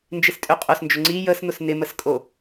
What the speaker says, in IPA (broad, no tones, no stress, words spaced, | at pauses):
nd͡ʒɪstʼøqʼʊsnd͡ʒʊ ŋ͡ǀi jəsn̪ʊs nɪməskʼo